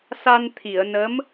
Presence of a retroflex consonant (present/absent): absent